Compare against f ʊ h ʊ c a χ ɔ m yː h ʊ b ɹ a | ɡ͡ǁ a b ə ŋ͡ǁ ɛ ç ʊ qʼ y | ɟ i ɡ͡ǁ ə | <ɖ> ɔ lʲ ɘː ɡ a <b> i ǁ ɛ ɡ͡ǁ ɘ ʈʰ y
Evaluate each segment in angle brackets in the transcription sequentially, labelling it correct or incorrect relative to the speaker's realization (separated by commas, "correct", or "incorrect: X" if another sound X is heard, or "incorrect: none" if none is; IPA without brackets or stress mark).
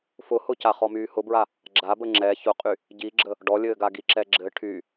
correct, incorrect: ɡ